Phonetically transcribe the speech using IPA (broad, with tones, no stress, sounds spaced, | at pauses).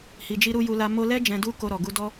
h i˨ d͡ʒ i˧ ɾ u˧ j u˧ l a˧ m o˧ l ɛ˦ d͡ʒ ɛ̃˧ d u˦ k o˧ ɾ ɔ˨ ɡ u˧ d ɔ˦